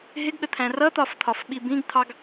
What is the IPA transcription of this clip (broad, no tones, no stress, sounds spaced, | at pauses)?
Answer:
ɦ ɪ ɡ ɠ ə t̪ʰ æ̃ r ʌ t̪ ɒ f t̪ʰ ɒ f ɓ i b ĩ ɡ t̪ʰ ɑ ɡ